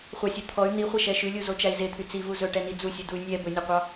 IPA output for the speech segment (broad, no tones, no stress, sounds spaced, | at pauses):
χʷ ɑ sʲ u t̪ʰ ɔ y̯ n̪ i χʷ ɛ ʃ ɛ ʃ ʉ lʲ u z o t͡ʃ æ i̯ z e t̪ʰ y t͡s i v u z ɵ ʈ ɛ n i d͡z u sʲ u d u y̯ nʲ ɛ b ɵ nʲ ɔ qʷ ɑ